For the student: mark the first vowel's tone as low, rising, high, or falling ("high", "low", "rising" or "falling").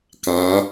rising